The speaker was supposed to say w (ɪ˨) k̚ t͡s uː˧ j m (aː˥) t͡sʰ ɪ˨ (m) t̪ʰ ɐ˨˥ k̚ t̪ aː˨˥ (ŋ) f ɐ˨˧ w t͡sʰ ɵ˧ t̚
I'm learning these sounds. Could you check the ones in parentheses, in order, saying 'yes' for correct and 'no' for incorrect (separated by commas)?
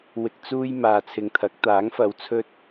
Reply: yes, no, no, yes